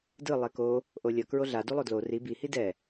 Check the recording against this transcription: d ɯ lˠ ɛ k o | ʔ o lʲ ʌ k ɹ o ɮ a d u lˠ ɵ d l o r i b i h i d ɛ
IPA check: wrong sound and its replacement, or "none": ɵ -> o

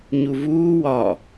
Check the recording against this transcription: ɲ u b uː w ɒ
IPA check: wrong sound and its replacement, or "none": b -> v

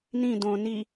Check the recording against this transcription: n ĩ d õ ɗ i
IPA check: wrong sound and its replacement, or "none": ɗ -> n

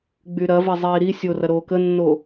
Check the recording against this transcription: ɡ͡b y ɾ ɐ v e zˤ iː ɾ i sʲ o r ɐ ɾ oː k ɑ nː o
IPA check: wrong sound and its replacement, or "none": ɑ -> ə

